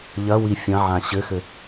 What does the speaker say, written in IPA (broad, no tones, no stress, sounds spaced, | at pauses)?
ʎ ɐ w i fʲ ɐ̃ ʕ ã ɕ ɘ x ɘ